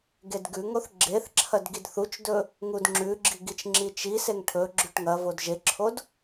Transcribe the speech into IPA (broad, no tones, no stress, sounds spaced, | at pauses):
ɡ e d ɡ ʉ ŋ o θ ɡ͡ǁ e θ ǁʰ ɐ d ɡ i d θ u t͡ʃ d ɵ | ŋ u d ŋ͡ǁ ʉ ɡ͡ǁ i ɡ i t͡ʃ ŋ͡ǁ i t͡ʃ i s e ŋ ʈʰ ɵ ɡ͡ǁ ʉ ʈ ŋ ɐ v o d ʒ e ǁʰ o d